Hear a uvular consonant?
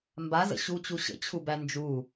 no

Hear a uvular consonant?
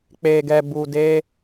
no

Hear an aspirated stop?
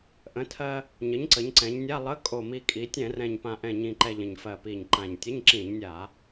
yes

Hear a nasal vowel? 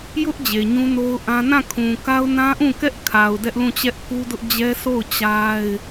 yes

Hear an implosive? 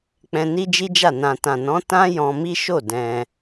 no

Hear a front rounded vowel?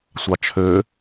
yes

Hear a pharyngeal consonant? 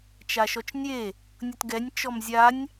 no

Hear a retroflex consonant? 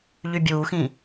no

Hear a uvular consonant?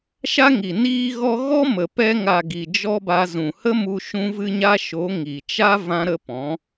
no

